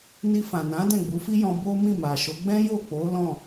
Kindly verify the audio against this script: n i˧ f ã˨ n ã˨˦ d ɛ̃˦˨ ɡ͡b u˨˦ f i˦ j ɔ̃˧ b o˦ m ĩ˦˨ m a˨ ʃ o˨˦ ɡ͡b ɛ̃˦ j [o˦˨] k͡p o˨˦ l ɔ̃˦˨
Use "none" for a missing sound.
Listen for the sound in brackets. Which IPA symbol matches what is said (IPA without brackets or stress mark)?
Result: o˦˨